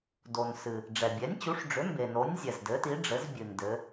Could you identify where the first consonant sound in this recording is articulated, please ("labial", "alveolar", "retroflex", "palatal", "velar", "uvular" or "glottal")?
alveolar